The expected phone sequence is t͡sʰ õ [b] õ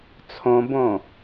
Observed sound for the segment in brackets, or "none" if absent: b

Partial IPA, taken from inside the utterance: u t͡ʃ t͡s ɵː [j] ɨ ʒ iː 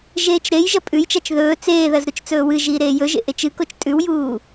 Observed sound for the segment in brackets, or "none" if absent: w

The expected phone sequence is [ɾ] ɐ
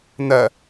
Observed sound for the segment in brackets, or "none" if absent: n̪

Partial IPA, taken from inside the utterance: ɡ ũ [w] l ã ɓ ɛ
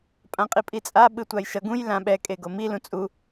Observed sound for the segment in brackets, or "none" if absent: j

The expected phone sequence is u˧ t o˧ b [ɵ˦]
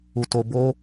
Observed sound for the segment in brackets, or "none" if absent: o˦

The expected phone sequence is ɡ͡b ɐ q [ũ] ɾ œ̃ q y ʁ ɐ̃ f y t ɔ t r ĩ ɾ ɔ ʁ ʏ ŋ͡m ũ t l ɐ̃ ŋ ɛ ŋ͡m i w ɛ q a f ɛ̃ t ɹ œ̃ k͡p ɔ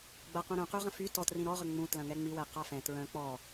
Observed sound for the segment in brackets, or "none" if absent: ũ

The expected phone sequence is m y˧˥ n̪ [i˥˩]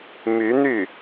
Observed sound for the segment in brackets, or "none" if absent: y˥˩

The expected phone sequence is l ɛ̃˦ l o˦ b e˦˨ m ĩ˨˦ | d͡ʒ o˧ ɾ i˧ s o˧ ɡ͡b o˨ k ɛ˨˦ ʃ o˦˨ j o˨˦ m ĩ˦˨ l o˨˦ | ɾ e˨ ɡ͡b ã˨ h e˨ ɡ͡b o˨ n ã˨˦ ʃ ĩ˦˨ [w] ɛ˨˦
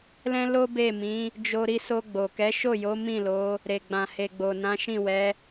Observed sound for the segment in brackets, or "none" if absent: w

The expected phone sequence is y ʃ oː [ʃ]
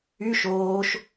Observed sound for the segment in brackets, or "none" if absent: ʃ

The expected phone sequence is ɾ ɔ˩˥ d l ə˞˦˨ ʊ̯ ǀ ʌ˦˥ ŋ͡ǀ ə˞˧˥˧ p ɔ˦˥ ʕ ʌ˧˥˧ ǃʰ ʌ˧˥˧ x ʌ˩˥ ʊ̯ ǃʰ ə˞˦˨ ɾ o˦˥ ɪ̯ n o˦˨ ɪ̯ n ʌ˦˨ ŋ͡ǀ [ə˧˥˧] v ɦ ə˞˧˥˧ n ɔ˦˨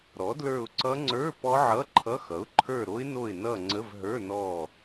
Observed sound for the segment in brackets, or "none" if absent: ə˧˥˧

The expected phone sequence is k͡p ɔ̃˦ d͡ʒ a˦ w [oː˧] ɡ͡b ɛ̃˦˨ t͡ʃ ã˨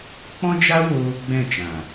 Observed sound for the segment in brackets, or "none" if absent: oː˧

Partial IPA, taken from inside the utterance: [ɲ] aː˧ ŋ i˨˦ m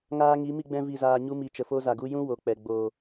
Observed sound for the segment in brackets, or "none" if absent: ŋ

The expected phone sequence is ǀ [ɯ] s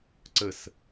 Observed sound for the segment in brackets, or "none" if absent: ə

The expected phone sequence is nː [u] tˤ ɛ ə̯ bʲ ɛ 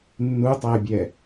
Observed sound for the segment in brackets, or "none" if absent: u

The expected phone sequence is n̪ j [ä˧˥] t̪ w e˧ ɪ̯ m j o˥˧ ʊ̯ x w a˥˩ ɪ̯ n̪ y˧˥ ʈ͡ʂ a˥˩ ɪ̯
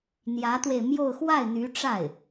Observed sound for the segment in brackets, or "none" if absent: ä˧˥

